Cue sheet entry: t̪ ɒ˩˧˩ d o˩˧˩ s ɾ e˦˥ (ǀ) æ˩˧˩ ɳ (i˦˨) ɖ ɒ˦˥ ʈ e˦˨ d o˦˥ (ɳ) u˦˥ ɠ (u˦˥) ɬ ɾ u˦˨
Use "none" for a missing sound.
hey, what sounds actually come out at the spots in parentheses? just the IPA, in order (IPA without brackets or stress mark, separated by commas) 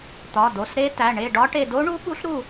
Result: t, e˦˨, ɳ, u˦˥